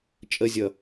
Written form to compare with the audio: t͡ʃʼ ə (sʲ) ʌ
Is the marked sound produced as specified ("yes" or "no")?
no